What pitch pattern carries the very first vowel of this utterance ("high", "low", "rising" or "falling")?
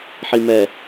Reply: low